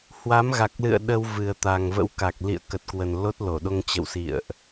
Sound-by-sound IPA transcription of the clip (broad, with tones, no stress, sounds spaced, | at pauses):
h w a˨˦ m ɣ a˨˩ k̚ l ɨ̰˧˨ ə̯ ɗ ə˧ w v ɨ˨˩ ə̯ t̪ a˨˩ ŋ v ə̰˧˥ w k a˨˩ k̚ l ḭ˧˨ ə̯ k ə˨˩ t̚ k w ə˨˩ n l o˦˥ t̚ l o˧˩ ɗ o˧ ŋ t͡ɕ ə̰˧˨ w s ḭ˧˨ ə̯ ʔ